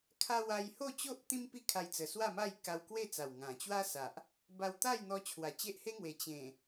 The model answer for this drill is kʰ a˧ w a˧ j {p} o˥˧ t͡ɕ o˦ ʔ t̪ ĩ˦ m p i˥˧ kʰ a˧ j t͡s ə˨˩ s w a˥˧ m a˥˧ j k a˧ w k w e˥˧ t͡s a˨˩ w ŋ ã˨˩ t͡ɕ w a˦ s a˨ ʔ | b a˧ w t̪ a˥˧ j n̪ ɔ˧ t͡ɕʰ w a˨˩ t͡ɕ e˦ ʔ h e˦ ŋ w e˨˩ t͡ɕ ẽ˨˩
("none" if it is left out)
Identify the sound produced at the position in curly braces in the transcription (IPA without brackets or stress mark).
h